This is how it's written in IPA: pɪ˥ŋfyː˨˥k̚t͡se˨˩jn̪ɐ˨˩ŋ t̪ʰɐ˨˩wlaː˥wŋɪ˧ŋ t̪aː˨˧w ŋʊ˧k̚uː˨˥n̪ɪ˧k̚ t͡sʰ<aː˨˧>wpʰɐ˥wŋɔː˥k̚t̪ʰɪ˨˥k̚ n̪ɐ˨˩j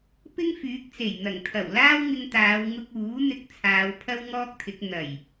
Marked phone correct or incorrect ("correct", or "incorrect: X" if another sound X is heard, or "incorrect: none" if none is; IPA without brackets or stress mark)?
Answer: correct